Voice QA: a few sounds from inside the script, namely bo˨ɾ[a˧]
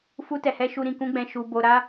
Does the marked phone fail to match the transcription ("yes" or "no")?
no